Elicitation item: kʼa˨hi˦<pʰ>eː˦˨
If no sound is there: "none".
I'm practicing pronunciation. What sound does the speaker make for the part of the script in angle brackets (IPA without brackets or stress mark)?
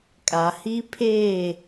pʰ